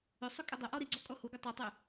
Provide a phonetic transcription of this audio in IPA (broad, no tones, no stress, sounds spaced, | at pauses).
ʏ sˤ ʏ kʼ ʏ dˤ ʏ ʔ ɔ ɾ i ɡ͡ǀ ɔ kʼ ɔ h u ɡ u tˤ u tˤ y